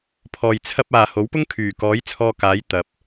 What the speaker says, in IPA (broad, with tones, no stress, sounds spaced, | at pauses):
pʰ ɔː˨ j t͡sʰ ɐ˥ p̚ aː˨ h o˨˥ w p ʊ˥ ŋ kʰ yː˨˩ k ɔː˨˥ j t͡sʰ ɔː˧ k aː˨˥ j t̪ ɐ˨ p̚